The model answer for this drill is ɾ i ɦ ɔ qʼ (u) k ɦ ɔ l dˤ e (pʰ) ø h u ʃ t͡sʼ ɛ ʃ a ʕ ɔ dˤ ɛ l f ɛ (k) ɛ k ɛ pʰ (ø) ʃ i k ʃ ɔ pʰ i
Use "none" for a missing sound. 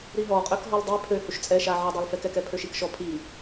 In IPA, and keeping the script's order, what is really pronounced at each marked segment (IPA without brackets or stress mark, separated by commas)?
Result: ø, pʰ, k, ø